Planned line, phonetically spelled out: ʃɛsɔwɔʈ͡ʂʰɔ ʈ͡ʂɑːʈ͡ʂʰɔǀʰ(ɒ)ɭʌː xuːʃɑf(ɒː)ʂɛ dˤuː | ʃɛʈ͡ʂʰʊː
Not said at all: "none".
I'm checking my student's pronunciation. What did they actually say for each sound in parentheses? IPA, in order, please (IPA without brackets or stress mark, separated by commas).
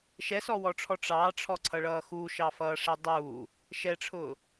ʌ, ʌː